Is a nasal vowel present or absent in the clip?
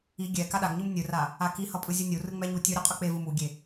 absent